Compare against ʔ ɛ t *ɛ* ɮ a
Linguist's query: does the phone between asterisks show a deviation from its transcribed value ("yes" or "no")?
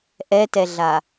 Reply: no